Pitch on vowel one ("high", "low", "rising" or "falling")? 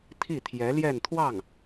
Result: falling